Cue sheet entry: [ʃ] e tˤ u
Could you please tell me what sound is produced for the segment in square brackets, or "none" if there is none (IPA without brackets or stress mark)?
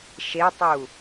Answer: ʃ